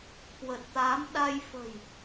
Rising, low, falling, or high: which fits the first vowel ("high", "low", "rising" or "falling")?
low